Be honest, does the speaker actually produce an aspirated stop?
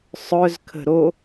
yes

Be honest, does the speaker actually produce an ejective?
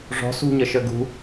no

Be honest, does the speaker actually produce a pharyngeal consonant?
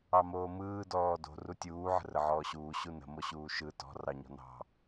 yes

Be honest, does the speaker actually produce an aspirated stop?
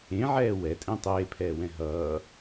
yes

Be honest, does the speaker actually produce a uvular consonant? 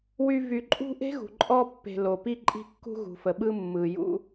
no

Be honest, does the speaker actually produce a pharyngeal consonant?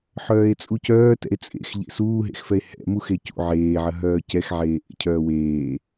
yes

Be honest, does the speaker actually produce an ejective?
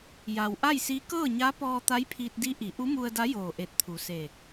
no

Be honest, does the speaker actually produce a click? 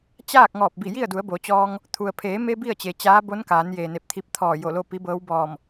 no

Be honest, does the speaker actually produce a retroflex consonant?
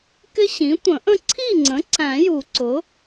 no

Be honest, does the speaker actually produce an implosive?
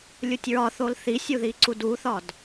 no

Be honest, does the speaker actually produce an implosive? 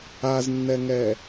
no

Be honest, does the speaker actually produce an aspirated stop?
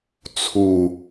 yes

